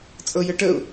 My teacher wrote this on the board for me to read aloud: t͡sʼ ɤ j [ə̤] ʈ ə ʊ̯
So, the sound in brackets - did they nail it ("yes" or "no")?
no